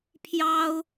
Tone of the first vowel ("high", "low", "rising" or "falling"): high